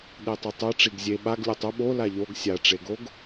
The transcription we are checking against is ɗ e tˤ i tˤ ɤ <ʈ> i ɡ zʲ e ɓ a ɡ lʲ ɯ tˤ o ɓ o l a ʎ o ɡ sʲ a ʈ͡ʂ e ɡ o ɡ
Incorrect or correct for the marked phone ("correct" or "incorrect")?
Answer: incorrect